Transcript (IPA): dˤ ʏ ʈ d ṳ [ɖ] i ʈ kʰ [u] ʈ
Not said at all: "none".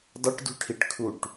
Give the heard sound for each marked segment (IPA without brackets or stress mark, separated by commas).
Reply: ʈʰ, u